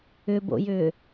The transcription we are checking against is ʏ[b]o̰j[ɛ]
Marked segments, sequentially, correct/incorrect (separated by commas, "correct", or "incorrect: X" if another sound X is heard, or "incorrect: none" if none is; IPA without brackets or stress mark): correct, incorrect: ʏ